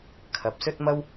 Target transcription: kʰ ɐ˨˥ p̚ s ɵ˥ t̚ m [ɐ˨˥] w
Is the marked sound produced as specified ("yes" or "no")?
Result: no